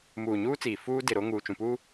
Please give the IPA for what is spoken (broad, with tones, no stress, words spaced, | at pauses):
muː˨ɲuː˦t͡siː˨ fuː˦dɪ˨ ɾo˦ ŋuː˨t͡ʃũ˨puː˦